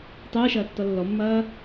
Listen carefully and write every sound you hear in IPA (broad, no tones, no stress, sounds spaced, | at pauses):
tˤ ɯː ʃ ɐː tː ɔ lː ɔ mː ɐː